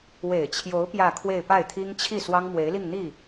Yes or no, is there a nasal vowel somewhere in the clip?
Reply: no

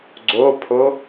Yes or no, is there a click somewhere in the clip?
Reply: yes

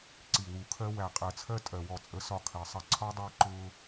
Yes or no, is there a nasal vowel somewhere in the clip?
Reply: no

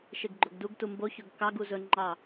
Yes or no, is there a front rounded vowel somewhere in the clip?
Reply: no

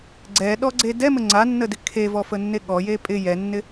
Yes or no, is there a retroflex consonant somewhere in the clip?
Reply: no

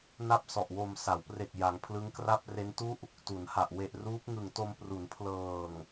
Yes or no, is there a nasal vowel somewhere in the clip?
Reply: no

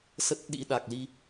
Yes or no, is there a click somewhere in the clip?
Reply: no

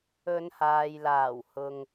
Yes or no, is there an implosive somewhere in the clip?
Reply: no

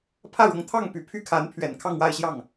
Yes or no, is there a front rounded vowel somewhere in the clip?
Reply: yes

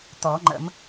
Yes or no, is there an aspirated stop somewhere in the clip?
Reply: no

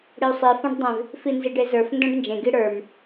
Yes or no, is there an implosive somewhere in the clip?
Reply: no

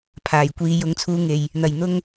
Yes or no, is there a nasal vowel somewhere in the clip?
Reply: no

